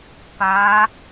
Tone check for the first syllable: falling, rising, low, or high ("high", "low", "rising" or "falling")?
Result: rising